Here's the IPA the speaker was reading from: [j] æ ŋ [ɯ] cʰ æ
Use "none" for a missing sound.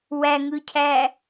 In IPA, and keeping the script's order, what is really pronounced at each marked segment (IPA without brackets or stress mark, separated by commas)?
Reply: w, ɯ